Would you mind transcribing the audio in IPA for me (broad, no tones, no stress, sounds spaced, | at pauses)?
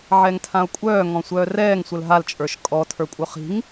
ʕ ɛ ŋ tʰ ã o̯ kʷʼ œː ŋ ɔ̃ sʷ œː r ɛː ŋ sʷ ə l ɦ a l t͡ʃʼ ə˞ ʃ kʼ ɔ tʰ ə˞ kʷʼ œ χ i̤ ŋ